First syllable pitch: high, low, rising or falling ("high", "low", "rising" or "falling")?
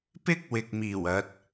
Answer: high